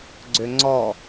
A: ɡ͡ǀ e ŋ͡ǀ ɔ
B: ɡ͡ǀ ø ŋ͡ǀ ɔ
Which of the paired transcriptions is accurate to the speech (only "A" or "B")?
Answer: B